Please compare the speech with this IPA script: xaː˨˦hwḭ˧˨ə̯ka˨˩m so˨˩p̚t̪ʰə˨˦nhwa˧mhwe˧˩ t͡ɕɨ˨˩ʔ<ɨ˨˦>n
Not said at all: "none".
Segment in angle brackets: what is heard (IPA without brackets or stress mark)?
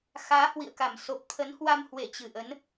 ə˨˦